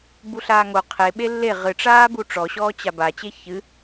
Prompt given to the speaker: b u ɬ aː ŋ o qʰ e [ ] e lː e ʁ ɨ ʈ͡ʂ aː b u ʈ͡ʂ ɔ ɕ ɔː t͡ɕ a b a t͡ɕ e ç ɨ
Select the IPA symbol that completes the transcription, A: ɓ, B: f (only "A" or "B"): A